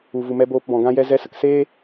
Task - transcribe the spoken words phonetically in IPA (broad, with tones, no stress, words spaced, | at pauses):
u˨vu˨mɛ˧ boː˧pbɔ̃˨ɡã˦jɛ˦ zɛ˧ sə˧kseː˦